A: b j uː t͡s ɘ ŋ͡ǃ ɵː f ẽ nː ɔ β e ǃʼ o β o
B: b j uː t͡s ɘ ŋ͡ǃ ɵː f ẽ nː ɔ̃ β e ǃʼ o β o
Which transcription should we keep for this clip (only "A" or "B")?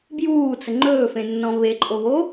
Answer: B